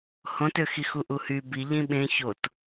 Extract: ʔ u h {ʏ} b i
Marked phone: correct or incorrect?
incorrect